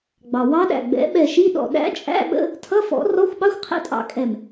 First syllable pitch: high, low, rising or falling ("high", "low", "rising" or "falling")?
low